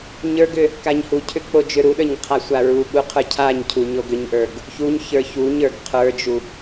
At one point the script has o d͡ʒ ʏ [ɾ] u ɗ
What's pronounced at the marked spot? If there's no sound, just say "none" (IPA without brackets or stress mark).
ɾ